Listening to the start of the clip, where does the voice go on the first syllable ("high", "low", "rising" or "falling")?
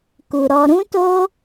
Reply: low